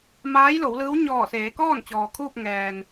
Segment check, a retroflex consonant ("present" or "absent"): absent